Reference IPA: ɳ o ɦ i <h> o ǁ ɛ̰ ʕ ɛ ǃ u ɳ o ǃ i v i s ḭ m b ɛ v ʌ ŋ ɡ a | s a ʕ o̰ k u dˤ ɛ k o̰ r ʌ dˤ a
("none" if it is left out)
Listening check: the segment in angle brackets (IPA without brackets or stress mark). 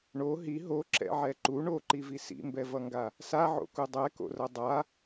ɦ